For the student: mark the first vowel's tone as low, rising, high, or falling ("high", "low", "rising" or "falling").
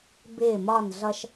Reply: falling